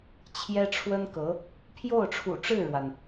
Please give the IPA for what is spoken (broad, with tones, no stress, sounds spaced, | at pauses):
t͡ɕʰ j ɛ˥ ʈ͡ʂʰ w ə˥ n k ɤ˧˥ | pʰ j o˥˩ ʊ̯ ʈ͡ʂʰ ṵ˨˩ ʈ͡ʂ ɻ̩˥˩ ɻ w a˩ n